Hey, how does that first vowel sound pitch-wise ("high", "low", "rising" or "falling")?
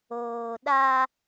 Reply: low